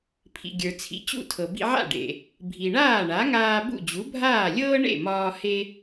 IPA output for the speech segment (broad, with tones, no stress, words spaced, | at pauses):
pʰḭ˩ ɡʲə˞˩t͡sʰḭ˩˥t͡ɕṵ˥˩tʰɤ˩ bḭ˧ʕa̰˥˩ɖḛ˩ | bʱi˩ɳaː˥˩ɳa˩˥ŋaː˧ bṵ˥˩d͡ʑu˩˥bʱaː˥˩ lʲɤː˥ ɳḛ˥˩mɒː˧ he˥